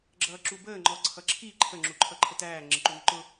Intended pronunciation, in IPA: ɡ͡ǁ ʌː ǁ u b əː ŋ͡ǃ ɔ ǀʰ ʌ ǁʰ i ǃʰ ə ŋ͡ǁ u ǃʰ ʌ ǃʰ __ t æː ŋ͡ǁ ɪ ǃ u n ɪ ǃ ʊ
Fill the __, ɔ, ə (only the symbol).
ə